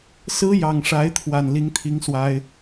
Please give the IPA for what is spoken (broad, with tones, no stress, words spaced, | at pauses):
sɹ̩˥ jɑ˨˩ŋʂa˧˥ɪ̯ t̪ʰwa˨˩nli˧˥ŋt̪ʰi˧˥ŋ swa˥ɪ̯